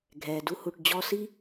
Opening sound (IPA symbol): ɡʱ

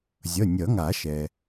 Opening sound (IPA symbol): zʲ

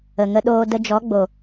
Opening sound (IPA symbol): ə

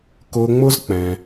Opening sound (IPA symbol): k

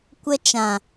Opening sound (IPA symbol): kʷ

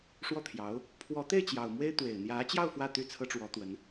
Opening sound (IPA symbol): ʂ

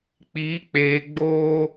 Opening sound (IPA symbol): k͡p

